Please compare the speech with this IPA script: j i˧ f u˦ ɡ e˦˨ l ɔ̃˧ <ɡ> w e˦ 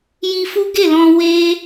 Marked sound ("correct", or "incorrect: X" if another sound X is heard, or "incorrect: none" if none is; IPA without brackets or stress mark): incorrect: none